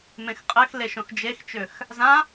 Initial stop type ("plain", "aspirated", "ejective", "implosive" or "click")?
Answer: ejective